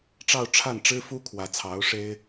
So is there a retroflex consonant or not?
yes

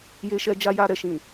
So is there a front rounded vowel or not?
no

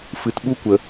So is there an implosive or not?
yes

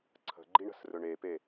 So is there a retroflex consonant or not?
yes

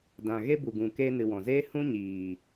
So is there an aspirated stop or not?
no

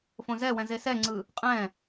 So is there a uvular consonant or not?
yes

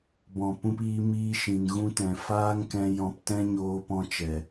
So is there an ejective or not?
no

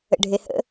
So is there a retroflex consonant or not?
yes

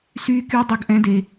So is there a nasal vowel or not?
yes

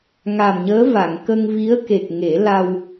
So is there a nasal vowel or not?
no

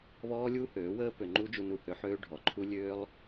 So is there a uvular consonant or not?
no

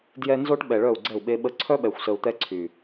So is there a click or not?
yes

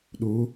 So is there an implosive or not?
yes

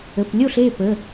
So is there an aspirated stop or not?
no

